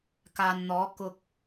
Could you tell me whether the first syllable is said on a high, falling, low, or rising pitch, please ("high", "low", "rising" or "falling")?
low